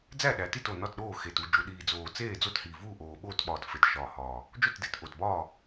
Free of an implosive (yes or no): no